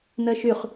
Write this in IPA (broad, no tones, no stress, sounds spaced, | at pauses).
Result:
n ɜ ʃ y χ